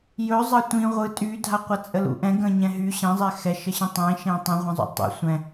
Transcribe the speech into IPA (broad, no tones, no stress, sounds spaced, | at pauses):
j ɵ zˤ ɑ tʷ ĩ ʁʷ ɯ tʼ y dʱ a qʷ a t͡sʼ ə l ṵ ʔ ɛ̃ ɡ ə̃ ɲ ɛ̃ ɦ y ɕ ɛ̃ zˤ ɛ x ɛ ʃ ə ɕ ĩ tˤ ẽ ʃ ẽ tˤ ə̃ ʁʷ ẽ zˤ ṵ tˤ ɛ̰ sʷ ɛ̃